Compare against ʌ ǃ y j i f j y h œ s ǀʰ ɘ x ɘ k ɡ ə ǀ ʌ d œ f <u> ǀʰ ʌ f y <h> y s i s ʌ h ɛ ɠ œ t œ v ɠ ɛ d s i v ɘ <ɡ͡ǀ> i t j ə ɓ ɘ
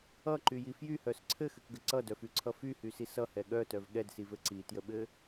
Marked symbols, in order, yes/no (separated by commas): no, yes, no